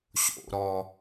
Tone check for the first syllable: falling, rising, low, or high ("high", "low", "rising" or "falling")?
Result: high